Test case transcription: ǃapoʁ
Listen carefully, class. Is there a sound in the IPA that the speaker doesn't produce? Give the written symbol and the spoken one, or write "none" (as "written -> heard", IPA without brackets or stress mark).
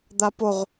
ǃ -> d̪